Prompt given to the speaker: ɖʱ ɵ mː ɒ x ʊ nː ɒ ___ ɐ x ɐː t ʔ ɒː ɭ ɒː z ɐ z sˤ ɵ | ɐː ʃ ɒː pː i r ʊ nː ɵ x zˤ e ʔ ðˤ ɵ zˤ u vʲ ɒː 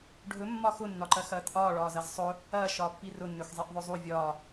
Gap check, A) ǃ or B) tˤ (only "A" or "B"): A